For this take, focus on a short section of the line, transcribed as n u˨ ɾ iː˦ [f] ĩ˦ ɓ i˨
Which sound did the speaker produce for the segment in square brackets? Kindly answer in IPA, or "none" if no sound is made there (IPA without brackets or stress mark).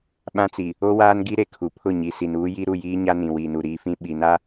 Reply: f